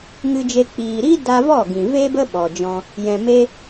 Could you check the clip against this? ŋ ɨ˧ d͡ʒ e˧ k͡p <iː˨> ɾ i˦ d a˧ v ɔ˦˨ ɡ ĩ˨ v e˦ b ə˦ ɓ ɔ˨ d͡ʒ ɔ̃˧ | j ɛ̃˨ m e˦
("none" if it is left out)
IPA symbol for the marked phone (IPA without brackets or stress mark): iː˨